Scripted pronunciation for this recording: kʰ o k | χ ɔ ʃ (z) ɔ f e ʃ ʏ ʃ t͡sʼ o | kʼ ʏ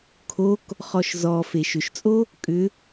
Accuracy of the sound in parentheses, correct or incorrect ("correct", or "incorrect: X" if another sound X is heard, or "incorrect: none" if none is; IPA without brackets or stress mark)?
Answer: correct